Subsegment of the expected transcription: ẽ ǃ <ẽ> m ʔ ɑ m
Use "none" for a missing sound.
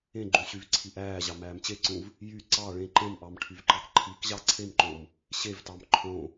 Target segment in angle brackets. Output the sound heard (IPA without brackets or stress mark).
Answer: ẽ